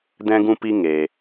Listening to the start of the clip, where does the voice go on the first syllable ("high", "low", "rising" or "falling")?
high